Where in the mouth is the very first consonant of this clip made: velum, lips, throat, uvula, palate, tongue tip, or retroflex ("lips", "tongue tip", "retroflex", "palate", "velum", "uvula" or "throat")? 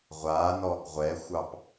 uvula